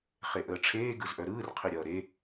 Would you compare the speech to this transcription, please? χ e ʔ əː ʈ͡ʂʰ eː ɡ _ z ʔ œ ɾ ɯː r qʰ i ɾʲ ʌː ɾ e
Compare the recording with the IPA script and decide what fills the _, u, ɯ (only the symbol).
ɯ